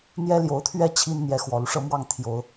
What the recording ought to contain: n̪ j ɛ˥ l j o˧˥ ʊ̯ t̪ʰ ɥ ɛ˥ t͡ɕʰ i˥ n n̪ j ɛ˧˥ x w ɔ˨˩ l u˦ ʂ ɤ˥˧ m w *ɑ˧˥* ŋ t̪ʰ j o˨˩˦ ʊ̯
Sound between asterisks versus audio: incorrect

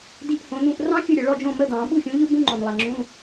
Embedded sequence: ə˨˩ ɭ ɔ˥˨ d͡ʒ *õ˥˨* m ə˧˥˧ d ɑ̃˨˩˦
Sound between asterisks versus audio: correct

